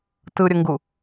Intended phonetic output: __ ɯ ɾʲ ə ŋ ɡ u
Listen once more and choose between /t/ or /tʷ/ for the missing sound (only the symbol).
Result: t